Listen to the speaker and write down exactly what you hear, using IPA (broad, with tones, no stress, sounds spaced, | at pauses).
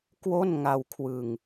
k w o˥˩ n ŋ a˧ w kʰ w ɯ˧ ŋ